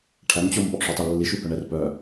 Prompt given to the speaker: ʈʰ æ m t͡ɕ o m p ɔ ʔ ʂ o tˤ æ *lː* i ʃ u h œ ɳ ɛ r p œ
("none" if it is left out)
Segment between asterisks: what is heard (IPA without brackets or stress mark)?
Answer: lː